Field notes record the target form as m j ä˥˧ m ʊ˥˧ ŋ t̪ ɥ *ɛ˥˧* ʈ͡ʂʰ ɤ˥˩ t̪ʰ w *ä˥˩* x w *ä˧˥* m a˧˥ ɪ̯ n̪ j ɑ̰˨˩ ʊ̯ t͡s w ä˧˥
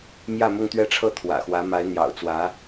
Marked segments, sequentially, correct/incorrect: correct, incorrect: ä̰˨˩, correct

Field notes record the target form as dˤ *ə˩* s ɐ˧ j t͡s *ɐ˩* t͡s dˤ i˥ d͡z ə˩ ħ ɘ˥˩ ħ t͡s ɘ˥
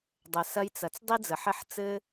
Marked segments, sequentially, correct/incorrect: correct, correct

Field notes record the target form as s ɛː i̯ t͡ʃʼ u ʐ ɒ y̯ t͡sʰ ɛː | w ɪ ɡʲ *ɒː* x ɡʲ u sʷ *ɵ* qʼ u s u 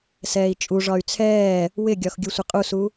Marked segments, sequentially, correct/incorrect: incorrect: ɒ, incorrect: ə

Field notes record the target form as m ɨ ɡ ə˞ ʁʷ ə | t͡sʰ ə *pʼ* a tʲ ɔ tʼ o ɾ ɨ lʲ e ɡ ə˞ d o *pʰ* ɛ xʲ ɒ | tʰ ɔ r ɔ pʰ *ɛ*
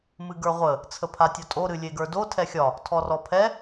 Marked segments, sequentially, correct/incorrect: incorrect: pʰ, incorrect: tʰ, correct

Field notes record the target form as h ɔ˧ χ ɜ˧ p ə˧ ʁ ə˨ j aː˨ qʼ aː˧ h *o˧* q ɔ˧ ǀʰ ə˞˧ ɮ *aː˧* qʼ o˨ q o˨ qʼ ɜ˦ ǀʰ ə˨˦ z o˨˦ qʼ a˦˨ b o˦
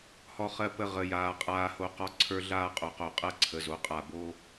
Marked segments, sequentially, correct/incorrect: correct, correct

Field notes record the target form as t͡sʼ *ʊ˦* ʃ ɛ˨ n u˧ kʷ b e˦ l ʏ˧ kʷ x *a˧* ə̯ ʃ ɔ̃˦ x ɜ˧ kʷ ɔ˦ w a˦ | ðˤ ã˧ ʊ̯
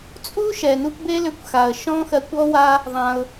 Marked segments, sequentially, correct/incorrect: incorrect: u˦, incorrect: a˨

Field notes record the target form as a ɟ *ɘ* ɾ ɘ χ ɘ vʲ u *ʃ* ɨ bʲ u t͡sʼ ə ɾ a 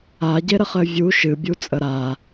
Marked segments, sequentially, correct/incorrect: incorrect: e, correct

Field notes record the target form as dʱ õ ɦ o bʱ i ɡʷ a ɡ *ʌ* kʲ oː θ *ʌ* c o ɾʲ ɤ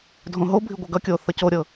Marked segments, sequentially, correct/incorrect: correct, correct

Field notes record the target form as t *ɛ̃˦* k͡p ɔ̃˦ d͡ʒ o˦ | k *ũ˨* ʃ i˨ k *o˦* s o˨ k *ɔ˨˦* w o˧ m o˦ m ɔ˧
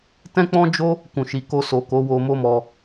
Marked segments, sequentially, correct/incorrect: correct, correct, incorrect: o˧, incorrect: o˨˦

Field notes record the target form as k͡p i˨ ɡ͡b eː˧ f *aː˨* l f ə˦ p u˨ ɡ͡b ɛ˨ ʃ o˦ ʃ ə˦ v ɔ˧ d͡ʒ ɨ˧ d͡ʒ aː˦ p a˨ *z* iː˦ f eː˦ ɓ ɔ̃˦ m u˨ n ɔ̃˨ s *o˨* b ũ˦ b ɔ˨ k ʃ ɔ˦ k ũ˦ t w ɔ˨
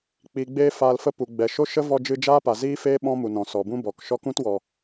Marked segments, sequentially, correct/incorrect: incorrect: aː˧, correct, incorrect: ɔ˨

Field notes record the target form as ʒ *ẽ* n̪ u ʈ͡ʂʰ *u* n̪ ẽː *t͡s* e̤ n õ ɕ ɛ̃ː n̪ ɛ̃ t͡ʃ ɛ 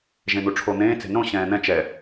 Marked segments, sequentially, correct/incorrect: correct, incorrect: o, correct

